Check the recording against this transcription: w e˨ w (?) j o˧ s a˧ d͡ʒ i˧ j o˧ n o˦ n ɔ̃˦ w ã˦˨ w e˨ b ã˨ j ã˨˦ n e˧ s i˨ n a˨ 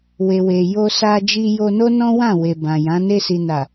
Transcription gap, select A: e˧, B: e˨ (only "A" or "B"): B